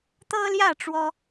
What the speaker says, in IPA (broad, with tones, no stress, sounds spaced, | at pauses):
t̪ ɤ˦ l j ä˥˨ ʈ͡ʂ w ɔ˦